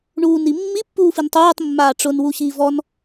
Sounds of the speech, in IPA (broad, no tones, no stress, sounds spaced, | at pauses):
ɳ uː n i mː i pː uː f i n tˤ uː tˤ mː aː ʈ͡ʂ ʊ n w u ɕ iː v ɔ n